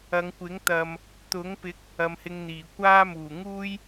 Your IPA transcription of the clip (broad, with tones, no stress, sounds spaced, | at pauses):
ɐ˨˧ ŋ kʷ ɪ˨˥ ŋ t̪ ɐ˨ m | t̪ ʊ˨˥ ŋ p ɪ˨˥ k̚ | ɐ˨˧ m h ɪ˧ ŋ n̪ iː˨˩ kʷ aː˥ m uː˨˩ ŋ uː˥ j